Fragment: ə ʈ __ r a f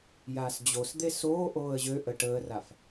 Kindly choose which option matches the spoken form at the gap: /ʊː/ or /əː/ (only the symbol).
əː